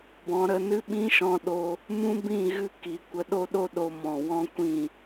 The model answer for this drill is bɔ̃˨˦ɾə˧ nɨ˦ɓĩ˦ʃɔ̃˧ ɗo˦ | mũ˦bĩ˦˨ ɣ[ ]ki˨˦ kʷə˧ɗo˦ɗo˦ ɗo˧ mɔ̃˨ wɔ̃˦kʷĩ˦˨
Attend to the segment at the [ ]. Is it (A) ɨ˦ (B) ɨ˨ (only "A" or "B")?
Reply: A